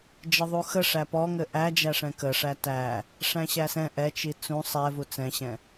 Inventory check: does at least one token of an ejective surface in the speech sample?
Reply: no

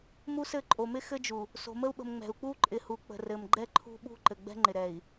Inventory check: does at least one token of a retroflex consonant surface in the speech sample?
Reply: no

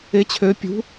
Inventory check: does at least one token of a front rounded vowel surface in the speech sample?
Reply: yes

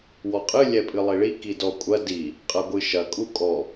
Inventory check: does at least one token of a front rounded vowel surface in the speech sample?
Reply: no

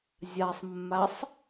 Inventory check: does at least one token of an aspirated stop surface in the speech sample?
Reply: no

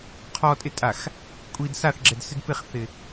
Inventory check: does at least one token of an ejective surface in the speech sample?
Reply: yes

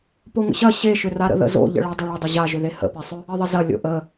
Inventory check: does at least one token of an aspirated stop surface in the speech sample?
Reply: no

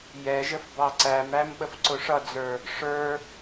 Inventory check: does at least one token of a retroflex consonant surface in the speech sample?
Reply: yes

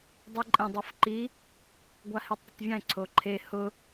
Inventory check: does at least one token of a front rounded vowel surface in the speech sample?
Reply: no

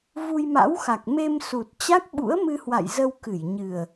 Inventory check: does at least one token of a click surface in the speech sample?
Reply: no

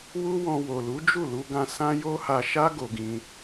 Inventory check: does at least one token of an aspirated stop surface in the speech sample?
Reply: no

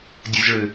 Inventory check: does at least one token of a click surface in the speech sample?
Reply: no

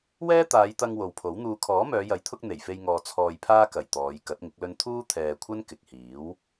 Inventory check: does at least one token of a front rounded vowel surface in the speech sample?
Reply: yes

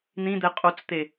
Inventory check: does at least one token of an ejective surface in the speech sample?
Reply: yes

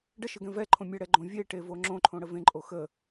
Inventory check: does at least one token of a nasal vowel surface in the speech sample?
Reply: yes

